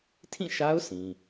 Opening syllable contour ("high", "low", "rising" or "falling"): falling